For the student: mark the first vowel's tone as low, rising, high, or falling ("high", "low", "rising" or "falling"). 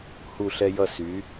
falling